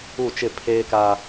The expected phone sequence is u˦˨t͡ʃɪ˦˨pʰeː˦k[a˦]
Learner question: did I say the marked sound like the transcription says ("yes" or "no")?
yes